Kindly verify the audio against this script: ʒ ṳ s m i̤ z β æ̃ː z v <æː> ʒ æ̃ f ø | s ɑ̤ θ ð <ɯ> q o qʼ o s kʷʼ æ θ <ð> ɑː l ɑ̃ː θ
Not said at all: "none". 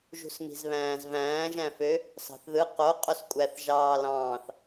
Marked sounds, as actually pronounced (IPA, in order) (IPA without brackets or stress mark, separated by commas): æ̃ː, ɯ, ʒ